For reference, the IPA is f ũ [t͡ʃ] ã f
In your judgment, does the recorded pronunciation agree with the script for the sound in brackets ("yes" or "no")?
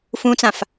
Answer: no